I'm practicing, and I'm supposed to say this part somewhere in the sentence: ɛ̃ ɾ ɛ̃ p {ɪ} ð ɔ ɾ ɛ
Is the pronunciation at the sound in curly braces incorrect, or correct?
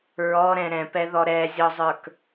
incorrect